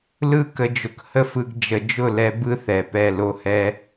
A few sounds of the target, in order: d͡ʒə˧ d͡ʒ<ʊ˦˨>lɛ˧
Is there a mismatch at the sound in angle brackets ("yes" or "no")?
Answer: no